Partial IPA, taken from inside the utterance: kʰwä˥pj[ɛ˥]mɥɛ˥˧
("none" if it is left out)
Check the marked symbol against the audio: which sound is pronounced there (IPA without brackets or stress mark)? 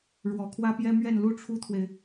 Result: ɛ˥